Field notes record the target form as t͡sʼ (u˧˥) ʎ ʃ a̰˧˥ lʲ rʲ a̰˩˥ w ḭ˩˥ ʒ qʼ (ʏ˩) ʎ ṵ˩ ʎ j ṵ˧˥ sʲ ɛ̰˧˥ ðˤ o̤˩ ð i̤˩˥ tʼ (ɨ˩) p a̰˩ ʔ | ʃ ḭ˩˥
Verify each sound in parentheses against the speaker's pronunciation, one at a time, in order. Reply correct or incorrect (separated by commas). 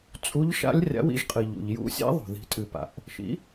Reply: correct, incorrect, correct